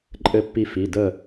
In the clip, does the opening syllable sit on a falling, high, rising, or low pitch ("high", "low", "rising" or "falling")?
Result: falling